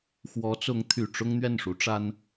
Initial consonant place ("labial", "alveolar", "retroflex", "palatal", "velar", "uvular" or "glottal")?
velar